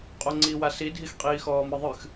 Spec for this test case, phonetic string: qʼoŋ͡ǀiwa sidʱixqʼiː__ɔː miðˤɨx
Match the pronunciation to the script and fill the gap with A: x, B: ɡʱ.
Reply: A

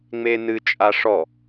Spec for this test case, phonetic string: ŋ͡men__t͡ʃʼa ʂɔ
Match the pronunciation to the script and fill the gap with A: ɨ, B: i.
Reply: A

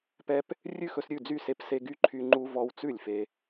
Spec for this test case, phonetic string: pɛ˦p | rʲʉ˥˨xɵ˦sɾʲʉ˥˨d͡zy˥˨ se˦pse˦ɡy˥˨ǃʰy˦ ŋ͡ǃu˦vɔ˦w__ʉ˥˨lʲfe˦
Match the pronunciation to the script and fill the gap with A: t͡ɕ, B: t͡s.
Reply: B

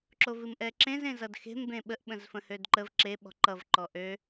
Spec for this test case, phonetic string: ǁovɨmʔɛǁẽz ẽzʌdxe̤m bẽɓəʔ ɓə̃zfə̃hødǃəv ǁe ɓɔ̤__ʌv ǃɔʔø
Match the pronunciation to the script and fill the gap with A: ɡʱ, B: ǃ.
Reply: B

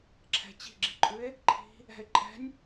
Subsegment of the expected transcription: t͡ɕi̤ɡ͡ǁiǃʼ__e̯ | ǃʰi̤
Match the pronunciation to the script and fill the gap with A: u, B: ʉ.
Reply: B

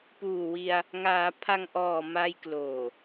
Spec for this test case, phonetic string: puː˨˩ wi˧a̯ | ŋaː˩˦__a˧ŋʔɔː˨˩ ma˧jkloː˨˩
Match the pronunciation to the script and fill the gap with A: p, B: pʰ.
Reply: B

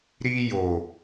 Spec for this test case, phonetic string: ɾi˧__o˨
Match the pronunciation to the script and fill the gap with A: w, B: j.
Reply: B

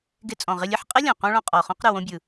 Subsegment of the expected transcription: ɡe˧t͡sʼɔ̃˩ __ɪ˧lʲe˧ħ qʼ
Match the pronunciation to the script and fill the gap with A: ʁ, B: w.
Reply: A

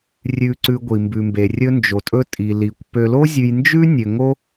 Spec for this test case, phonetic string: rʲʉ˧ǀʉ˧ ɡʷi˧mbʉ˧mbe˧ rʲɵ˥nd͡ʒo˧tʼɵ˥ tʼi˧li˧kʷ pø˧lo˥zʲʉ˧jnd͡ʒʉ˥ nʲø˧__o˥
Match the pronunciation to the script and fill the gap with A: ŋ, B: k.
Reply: A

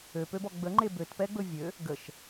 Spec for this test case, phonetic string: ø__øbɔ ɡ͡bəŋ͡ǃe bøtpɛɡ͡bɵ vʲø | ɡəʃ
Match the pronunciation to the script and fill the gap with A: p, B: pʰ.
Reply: A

